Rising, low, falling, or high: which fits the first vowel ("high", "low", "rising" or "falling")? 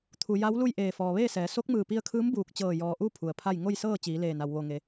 low